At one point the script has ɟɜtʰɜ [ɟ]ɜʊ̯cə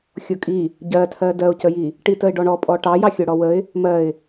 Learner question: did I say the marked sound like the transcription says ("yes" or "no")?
no